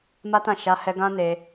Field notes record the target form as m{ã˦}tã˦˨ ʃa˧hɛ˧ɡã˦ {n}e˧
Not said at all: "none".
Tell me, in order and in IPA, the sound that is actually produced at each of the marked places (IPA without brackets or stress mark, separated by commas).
a˦, n